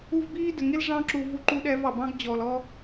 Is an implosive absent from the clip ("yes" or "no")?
no